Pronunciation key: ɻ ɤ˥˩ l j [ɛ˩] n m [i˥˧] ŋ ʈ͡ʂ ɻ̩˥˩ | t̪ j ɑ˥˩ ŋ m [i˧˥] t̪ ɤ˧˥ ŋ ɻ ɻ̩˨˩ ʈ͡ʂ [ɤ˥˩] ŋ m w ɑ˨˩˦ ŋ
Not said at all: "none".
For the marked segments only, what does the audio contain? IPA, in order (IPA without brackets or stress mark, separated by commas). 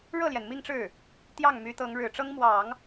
ɛ˩, i˥˧, y˧˥, ɤ˥